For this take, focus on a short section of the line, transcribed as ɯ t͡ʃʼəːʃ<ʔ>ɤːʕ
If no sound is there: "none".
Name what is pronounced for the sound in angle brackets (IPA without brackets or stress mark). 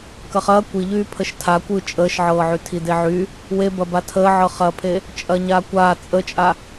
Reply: ʕ